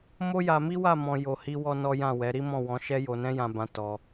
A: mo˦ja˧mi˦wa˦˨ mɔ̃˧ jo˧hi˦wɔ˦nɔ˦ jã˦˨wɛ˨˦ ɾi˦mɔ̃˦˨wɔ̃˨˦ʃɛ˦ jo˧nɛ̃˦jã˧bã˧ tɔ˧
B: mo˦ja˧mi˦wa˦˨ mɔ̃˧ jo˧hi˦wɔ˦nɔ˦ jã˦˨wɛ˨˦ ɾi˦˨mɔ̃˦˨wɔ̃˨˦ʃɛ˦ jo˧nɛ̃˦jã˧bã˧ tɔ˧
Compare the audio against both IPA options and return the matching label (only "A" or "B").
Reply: A